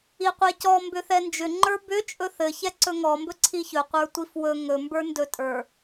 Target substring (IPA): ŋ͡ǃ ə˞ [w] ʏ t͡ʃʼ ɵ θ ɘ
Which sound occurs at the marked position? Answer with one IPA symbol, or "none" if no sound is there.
b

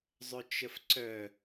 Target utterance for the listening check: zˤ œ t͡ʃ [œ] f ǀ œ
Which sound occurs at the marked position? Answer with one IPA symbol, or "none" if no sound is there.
ə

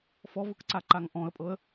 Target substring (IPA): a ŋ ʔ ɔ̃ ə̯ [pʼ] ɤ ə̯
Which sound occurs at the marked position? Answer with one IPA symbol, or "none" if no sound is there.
pʼ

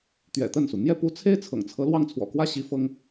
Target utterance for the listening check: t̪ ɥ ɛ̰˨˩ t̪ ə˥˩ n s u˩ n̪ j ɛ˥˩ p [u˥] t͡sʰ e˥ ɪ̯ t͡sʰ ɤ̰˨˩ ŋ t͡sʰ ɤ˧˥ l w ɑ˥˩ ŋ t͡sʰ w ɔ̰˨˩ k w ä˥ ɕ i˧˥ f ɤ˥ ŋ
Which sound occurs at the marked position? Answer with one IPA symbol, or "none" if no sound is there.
u˥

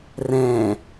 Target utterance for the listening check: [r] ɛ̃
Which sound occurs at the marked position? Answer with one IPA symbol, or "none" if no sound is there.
r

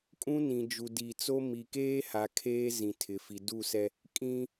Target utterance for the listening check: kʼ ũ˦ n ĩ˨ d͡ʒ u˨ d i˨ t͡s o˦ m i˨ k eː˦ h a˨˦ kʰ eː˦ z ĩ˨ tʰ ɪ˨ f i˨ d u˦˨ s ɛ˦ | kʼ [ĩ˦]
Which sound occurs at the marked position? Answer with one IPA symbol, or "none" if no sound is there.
ĩ˦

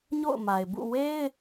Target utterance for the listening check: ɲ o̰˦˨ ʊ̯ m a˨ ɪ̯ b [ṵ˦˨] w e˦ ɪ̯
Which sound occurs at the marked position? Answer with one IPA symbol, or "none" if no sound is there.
ṵ˦˨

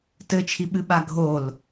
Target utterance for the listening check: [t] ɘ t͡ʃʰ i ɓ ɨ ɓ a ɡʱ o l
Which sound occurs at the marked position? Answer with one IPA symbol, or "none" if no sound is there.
t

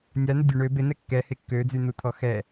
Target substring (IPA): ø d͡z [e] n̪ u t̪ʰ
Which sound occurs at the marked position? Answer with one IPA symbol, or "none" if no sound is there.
y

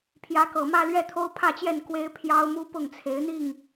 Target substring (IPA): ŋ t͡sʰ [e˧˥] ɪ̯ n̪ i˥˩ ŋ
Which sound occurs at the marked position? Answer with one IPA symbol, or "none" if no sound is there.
e˧˥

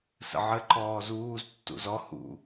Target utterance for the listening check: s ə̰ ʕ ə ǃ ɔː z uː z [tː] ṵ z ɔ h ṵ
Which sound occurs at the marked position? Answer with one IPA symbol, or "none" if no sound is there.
tː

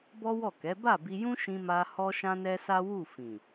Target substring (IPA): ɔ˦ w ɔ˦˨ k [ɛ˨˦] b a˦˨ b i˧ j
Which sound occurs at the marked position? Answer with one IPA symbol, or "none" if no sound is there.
ɛ˨˦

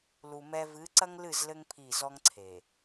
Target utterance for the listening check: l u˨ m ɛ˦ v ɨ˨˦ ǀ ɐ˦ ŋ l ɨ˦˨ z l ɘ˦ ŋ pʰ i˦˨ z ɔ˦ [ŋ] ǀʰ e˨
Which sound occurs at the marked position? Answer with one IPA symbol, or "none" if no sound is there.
ŋ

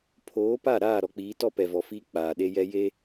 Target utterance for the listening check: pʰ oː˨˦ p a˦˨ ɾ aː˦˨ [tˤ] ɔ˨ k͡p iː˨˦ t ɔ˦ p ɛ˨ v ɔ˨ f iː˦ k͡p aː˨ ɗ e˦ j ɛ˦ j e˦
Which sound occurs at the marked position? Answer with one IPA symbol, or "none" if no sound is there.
ɾ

